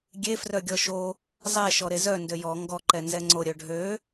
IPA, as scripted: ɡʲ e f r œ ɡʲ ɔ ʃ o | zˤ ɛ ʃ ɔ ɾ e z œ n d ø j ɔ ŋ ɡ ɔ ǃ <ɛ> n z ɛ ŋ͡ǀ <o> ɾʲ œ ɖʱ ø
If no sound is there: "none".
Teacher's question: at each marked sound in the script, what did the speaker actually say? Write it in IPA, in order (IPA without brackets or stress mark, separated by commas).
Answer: ɛ, o